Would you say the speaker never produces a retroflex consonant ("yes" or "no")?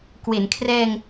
yes